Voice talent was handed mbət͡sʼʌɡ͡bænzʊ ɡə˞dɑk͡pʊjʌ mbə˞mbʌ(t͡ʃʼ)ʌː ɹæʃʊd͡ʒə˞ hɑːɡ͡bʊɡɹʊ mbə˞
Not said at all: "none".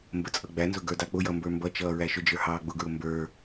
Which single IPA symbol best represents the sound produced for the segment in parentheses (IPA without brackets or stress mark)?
t͡ʃ